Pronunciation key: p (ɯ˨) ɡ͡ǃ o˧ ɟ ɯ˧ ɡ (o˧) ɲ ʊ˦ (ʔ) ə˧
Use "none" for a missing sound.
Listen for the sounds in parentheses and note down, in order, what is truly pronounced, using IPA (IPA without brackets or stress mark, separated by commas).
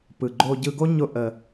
ɯ˨, o˦, ʔ